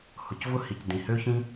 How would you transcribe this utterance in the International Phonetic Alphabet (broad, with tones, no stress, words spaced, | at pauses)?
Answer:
hʊ˩cvʊ˥hi˩c dĩ˩hø˥çĩ˥